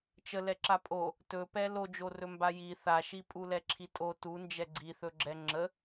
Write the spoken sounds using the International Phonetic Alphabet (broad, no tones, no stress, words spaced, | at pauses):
t͡ʃəlɛ ǁapʼo | tɵpɛ lod͡ʒorɵ mbaji θaʃi pʼulɛǁʰitʼo tu nd͡ʒɛɡ͡ǀiθɵɡ͡ǁɛ ŋ͡ǁə